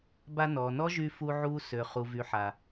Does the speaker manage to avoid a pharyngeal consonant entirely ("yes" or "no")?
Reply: no